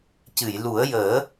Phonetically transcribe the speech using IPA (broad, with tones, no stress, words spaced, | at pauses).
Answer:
cɨ˨˩˨jlu˨˩˦ə̯ jəː˨˩˦